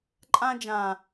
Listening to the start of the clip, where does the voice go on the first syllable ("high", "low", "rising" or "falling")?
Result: high